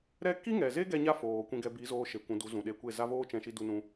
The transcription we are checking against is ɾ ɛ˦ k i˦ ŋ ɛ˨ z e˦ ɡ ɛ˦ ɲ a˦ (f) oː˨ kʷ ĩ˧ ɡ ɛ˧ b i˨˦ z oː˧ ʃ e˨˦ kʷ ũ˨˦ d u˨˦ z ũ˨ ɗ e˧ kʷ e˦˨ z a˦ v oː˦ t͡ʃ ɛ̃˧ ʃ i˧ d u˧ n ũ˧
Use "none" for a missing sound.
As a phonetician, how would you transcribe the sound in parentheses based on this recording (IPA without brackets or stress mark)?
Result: f